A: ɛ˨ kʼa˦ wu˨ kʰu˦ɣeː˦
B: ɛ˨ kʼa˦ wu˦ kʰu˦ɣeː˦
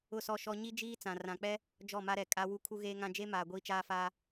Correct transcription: B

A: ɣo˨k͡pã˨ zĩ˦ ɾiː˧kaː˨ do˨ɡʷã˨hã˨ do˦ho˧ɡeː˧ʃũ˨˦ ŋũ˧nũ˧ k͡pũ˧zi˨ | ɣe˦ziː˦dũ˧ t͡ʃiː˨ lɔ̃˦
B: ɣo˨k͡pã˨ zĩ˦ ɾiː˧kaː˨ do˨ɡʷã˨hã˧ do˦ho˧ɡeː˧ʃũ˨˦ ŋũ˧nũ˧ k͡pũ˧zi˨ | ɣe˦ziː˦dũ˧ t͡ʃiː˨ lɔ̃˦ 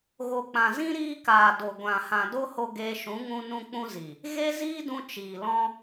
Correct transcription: A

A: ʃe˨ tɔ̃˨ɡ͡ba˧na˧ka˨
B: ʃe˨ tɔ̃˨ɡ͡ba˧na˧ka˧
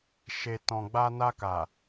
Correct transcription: A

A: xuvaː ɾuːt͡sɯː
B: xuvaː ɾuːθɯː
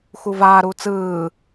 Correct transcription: A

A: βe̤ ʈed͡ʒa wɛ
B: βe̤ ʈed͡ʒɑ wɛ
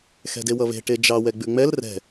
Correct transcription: B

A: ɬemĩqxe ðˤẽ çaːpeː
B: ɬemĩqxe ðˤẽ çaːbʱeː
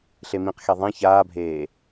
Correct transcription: B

